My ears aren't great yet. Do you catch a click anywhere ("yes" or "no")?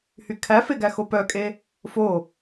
no